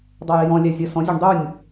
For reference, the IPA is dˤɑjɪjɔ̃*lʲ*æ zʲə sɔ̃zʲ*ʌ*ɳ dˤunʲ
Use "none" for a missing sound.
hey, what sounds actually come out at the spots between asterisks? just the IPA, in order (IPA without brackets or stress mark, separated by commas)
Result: lʲ, ə˞